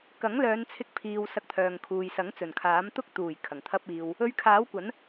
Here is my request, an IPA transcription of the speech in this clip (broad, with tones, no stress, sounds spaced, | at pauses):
k ɐ˨˥ ŋ l œː˨˧ n t͡sʰ ɪ˧ k̚ pʰ iː˨ w s ɐ˧ k̚ t̪ʰ œː˨ ŋ kʰ uː˨ j s ɐ˨˥ ŋ t͡s ɵ˨˩ n kʰ aː˨˥ m t̪ ʊ˥ k̚ t̪ uː˨˩ j kʰ ɐ˨˩ ŋ t̪ʰ ɐ˥ p̚ iː˧ w | ɵ˧ ɥ kʰ aː˨˥ w kʷ ɐ˨˥ n